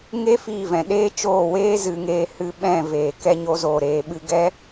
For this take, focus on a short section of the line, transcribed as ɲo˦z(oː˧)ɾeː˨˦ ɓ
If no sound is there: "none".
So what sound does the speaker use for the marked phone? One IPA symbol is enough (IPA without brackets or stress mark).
oː˧